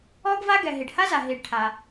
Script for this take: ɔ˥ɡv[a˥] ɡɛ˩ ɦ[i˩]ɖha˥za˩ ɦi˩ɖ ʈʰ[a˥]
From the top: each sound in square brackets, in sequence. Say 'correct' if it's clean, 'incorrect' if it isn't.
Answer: correct, correct, incorrect

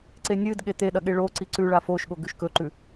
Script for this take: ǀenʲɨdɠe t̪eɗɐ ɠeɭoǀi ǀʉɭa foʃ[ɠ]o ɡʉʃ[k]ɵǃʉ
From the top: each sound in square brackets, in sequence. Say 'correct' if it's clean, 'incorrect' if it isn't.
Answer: correct, correct

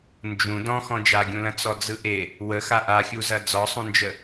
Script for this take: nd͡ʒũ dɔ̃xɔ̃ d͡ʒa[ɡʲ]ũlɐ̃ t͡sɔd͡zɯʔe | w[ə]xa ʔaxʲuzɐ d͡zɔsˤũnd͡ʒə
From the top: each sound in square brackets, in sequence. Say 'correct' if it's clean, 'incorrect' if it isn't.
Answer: correct, correct

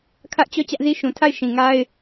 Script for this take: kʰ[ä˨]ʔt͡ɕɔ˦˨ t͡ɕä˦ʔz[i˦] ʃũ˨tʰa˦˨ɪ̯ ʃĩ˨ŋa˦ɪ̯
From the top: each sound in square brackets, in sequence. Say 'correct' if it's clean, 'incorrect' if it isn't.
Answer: incorrect, correct

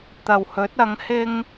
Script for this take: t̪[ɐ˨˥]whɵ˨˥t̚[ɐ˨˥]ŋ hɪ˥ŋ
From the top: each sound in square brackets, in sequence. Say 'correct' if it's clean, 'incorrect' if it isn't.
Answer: incorrect, correct

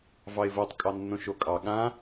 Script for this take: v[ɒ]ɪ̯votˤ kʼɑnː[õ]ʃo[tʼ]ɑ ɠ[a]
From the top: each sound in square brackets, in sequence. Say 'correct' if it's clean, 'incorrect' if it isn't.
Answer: incorrect, correct, incorrect, incorrect

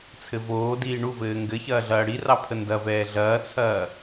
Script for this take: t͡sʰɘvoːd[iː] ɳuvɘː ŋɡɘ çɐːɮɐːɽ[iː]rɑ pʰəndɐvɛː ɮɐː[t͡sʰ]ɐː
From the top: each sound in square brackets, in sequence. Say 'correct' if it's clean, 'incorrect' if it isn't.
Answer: correct, incorrect, correct

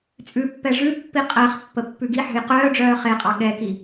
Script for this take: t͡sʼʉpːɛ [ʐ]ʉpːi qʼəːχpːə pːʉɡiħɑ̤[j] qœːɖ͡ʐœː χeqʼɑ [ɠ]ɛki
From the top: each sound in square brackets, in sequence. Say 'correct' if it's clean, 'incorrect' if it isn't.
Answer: correct, correct, correct

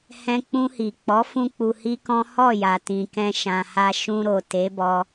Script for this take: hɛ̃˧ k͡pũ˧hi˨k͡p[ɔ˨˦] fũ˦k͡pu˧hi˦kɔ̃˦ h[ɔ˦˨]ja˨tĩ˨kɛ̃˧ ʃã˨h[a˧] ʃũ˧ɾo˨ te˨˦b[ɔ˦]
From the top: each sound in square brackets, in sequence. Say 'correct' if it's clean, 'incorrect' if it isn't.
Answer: correct, correct, correct, incorrect

